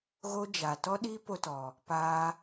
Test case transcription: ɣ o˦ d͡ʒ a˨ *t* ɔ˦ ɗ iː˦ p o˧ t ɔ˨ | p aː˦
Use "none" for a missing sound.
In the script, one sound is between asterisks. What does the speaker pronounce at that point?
t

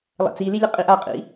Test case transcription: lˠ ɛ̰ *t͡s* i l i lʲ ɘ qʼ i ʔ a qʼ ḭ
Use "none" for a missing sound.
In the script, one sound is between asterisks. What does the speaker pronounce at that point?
t͡s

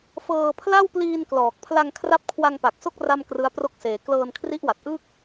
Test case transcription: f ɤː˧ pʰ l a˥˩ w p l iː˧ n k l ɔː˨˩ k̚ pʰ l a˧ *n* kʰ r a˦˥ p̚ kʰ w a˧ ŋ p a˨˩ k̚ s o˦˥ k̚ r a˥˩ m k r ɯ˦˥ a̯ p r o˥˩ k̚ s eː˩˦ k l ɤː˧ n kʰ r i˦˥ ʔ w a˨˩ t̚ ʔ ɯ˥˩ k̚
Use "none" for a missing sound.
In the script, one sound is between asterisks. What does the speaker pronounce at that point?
ŋ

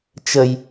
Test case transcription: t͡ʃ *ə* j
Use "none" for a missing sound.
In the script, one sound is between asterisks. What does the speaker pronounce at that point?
ə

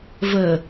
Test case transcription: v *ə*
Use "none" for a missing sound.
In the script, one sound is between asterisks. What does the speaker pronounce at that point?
ə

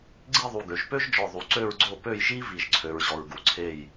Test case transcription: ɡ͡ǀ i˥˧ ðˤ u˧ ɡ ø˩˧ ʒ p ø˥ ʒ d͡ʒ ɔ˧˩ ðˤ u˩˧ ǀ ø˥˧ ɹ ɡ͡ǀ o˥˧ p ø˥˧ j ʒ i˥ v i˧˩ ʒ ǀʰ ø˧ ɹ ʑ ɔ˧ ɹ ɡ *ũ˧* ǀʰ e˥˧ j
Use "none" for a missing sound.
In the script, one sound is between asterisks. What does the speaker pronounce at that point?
u˧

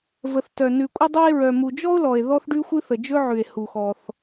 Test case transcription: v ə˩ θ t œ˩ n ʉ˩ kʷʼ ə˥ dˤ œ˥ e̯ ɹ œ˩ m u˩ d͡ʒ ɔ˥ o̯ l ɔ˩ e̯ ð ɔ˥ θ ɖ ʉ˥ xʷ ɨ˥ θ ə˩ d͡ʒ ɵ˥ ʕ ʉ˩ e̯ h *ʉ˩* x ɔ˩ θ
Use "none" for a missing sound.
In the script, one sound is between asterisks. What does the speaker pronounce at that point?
u˩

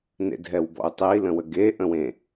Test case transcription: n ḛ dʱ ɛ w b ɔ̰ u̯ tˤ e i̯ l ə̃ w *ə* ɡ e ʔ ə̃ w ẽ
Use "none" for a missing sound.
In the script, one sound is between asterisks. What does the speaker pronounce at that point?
ə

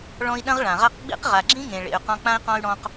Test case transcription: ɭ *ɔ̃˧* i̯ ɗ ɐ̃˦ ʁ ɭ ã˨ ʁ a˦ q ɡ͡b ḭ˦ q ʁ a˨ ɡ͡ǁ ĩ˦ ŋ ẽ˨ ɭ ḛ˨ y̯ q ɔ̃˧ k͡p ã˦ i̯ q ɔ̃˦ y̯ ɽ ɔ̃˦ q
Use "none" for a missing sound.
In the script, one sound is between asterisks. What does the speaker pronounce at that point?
ɔ̃˧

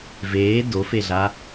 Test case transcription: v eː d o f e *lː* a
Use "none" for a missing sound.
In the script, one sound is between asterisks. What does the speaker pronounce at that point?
ɮ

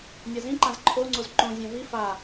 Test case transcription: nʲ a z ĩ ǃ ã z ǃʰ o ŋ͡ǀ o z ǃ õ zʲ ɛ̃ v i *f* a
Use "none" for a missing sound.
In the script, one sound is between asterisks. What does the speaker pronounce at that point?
f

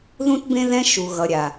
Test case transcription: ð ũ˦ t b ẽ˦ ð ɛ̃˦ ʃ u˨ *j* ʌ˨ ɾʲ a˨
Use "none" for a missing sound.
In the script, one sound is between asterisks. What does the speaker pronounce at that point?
ɣ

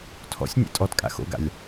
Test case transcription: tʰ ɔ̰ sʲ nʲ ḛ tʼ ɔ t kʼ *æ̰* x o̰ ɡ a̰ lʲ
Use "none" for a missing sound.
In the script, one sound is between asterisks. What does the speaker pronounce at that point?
a̰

